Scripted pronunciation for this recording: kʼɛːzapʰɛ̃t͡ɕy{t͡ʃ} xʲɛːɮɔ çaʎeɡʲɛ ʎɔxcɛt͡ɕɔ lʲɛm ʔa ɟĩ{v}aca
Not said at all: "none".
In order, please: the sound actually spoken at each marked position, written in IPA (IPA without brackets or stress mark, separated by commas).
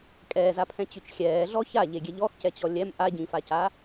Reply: t͡ʃ, f